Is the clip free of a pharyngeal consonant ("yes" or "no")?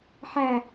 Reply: no